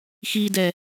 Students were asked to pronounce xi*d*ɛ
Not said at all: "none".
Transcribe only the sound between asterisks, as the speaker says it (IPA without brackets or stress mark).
d